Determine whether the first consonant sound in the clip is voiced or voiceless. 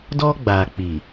voiced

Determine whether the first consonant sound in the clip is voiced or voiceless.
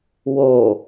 voiced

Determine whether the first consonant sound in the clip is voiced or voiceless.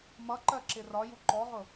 voiced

